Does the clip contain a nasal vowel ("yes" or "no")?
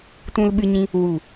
yes